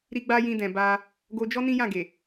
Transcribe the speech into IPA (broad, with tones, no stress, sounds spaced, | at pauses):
ɾ i˦ ɡ͡b a˦ j ĩ˧ d ɛ̃˨ b a˧ | ɡ o˧ d͡ʒ ɔ˦ n ĩ˦ j ã˦˨ ɡ e˨